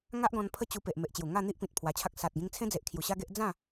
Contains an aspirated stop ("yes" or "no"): yes